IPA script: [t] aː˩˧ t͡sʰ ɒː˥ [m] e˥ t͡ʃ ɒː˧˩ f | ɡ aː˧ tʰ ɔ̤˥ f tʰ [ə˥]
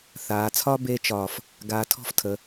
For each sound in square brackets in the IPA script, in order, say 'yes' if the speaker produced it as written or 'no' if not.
no, no, no

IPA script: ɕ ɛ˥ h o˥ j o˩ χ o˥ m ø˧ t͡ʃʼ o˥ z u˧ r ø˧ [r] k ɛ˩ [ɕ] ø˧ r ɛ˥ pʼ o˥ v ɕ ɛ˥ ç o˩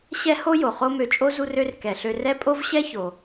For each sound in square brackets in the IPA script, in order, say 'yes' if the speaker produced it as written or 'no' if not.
yes, no

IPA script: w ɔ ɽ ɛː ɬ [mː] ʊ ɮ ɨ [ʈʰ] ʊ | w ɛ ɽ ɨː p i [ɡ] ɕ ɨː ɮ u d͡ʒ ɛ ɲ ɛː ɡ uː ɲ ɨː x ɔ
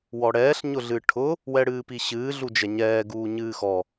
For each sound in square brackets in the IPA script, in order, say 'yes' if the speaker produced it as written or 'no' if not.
no, yes, no

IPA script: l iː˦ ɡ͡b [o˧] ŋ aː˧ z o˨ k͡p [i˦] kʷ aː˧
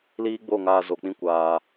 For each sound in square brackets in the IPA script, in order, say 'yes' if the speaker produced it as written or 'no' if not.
no, no

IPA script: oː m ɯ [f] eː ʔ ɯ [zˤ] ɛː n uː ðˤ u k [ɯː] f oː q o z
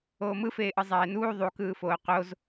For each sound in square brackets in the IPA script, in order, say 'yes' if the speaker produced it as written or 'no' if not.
yes, yes, yes

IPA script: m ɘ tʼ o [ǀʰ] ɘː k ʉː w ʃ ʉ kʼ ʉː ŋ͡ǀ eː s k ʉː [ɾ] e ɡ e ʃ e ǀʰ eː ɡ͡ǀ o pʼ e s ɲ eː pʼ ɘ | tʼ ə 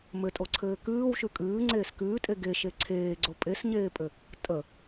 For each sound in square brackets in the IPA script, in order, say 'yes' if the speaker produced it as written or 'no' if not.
yes, no

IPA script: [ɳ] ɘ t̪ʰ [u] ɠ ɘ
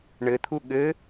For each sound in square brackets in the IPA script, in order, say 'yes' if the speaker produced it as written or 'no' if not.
yes, yes

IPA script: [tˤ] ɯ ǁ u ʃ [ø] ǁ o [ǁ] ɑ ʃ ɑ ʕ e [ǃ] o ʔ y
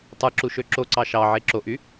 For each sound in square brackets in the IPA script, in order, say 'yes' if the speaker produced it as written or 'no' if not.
yes, yes, no, no

